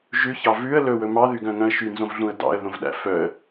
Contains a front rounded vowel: yes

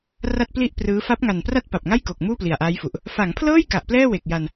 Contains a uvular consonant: no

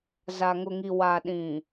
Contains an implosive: yes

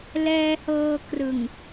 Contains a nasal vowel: no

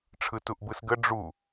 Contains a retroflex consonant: yes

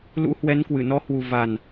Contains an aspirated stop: no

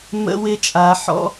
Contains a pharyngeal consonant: yes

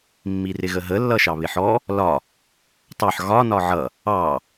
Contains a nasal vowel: no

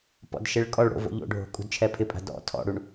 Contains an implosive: no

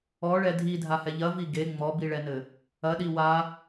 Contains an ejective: no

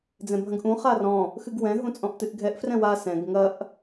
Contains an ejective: yes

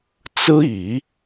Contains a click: no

